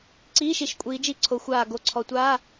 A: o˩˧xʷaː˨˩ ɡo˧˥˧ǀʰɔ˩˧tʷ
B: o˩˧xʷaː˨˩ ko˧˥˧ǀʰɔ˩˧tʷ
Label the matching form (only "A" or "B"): A